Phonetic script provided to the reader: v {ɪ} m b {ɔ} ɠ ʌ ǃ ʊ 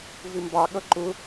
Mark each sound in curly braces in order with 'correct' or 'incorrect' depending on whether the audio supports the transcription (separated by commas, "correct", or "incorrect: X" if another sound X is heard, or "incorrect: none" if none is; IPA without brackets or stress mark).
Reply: correct, incorrect: ɑ